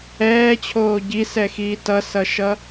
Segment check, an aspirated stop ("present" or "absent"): present